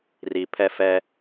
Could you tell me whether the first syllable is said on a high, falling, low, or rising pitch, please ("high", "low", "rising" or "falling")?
low